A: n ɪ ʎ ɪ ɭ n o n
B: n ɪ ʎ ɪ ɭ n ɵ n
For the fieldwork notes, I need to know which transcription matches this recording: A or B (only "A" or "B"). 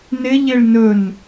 B